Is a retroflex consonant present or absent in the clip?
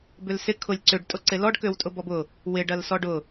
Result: present